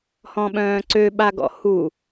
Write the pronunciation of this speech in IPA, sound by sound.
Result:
h ɔ̃ ɓ œ̃ː ǀ ø ɓ a ɡ ɔ̰ h u

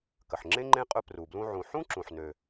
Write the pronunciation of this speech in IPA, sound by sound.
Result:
k ə˩ ħ ŋ͡ǁ ẽ˥ ŋ͡ǃ ẽ˥ qʼ ɵ˧ p r u˩ b l ũ˧ ʕ ũ˩ ħ ũ˥ ǁ ũ˩ ħ n ø˩

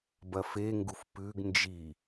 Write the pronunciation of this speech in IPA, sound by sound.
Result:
b ɐ f e ŋ ɡ u f p ʉ ɡ n d͡ʒ i

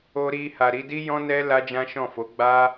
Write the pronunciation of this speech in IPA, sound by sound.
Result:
o˦ ɾ i˦ h a˧ ɾ i˦ d i˦ j ɔ̃˦ n ɛ˦ l a˦ d͡ʒ ã˦ ʃ ɔ̃˦˨ f o˨˦ ɡ͡b a˦

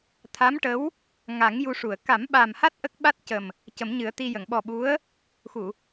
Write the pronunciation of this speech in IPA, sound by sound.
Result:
t̪ʰ a˧˥ m ʈ ə˧˥ w | ŋ a˨˩˦ ŋ j u˧ ʂ u˨˩˨ ə̯ k a˨˩˦ m ɓ a˨˩ m h a˦˥ t̚ ʔ ə˦˥ k̚ ɓ a˦˥ t̚ c ə˨˩ m | c ə˨˩˦ m ɲ ɨ˨˩˦ ə̯ t̪ i˧ j ə˨˩˨ ŋ ɓ ɔ˨˩ ɓ u˧˥ ə̯ | x u˨˩˨

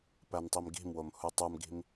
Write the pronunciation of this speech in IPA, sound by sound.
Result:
p æ n tˤ i m ɡ i̤ m w o m h u tˤ u m ɡ i̤ m

